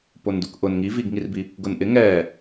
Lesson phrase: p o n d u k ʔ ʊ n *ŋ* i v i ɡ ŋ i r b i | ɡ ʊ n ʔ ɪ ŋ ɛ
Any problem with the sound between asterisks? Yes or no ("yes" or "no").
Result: no